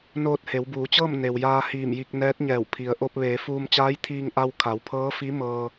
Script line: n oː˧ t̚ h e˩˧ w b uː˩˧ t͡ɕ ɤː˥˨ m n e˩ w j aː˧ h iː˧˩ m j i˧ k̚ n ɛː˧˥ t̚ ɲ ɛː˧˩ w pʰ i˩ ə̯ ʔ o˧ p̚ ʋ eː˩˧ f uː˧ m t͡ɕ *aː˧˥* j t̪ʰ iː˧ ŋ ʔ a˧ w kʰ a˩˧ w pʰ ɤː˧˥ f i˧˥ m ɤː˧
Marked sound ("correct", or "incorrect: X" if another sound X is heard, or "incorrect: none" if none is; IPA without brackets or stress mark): correct